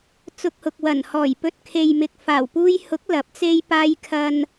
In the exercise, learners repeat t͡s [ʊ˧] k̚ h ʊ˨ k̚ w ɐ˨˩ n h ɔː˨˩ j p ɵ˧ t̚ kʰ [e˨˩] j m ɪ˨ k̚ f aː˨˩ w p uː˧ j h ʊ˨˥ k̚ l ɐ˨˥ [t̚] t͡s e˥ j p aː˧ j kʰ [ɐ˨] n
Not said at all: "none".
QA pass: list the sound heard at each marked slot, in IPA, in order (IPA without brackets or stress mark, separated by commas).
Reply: ʊ˧, e˨, p̚, ɐ˧